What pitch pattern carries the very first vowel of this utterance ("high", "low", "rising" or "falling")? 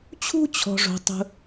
high